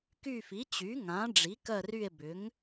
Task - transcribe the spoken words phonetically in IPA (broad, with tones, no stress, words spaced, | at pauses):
ky˦˨fi˩˥t͡ɕy˩˥ ŋã˩˥ ɖ͡ʐi˩˥kɜ˦˨ ry˦˨e̯bʏ˩˥ŋ